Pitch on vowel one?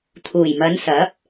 low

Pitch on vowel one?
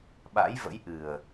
rising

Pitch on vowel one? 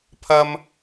high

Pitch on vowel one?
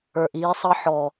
low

